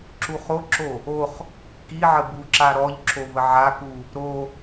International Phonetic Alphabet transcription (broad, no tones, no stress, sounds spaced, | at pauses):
ǁ u χ o ǁ o | o χ | k i ʕ ə b u ǁ a ɾ ɔ ʎ ǁʰ o v ə ʕ a k u | ɾ o